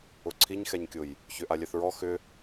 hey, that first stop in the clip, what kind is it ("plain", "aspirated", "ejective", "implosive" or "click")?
click